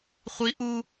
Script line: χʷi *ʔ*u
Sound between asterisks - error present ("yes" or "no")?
no